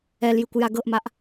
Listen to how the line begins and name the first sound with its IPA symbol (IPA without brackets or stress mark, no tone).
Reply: ɛ